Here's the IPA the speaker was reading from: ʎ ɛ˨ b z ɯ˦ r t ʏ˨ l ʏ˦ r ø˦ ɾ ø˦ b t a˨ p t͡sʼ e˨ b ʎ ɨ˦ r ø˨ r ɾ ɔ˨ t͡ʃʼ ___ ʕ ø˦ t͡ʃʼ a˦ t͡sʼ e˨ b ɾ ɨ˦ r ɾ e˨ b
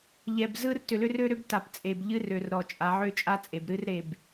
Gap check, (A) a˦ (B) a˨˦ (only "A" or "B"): B